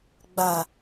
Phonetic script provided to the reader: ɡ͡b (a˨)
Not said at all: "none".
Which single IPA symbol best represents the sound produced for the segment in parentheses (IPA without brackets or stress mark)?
a˨